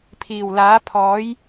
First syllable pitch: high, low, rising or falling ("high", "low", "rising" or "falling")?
low